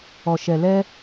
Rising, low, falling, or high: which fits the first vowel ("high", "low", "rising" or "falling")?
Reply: low